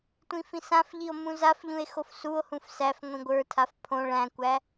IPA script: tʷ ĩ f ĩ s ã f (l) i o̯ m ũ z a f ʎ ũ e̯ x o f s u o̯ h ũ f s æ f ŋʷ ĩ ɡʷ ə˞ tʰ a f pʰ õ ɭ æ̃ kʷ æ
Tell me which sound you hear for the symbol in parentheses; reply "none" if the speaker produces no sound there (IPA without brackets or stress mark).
ʎ